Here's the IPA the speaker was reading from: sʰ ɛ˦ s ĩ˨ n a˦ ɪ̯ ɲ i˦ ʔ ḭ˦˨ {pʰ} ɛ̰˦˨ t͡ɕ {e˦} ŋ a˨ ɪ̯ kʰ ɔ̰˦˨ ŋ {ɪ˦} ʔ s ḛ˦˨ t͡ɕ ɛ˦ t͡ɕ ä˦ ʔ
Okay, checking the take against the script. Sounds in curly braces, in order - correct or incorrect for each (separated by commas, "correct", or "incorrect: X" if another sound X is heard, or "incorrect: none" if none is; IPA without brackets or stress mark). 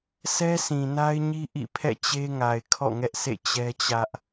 correct, correct, incorrect: ɛ˦